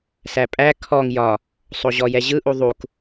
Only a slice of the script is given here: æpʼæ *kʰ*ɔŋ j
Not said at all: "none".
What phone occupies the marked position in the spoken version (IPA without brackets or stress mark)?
kʰ